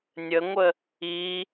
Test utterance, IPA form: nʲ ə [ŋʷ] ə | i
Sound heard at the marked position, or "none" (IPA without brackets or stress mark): ŋʷ